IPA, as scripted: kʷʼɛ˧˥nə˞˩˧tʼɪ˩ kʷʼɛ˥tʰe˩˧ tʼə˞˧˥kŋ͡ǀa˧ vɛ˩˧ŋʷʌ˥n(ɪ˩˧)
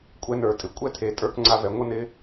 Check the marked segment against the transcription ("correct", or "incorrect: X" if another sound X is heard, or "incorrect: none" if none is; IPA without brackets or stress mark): incorrect: ɪ˧˥